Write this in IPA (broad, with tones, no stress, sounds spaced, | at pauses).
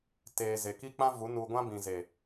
t eː˨ z e˨ k i˦ k͡p ã˦ v u˨˦ n u˧ ɡʷ ã˦ b ĩ˨ z e˨